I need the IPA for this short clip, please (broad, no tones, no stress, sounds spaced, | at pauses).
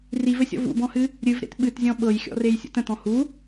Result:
r i v ɘ sʲ ɔ̰ v ṵ b ɔ̃ h ɨ | ɾʲ ɨ v ɾ ḛ t ɓ ɨ t zʲ ɔ̃ ɓ ɤ j xʲ ɔ̰ r e j sʲ ṵ t ə̃ t ɔ̃ h u